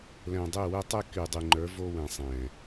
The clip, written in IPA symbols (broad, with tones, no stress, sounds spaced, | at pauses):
l ɛ̃˨ dˤ e˦˨ w ɛ˦ tˤ e˦ k y˨ dˤ y˨ ŋ͡ǃ ə˞˨˦ v o˦ w ɛ̃˨ sˤ ɛ̃˨